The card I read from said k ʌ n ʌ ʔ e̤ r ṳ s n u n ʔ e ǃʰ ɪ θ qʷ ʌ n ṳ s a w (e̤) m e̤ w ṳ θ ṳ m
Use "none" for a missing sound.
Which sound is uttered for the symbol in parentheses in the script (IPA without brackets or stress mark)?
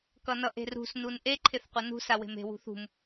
e̤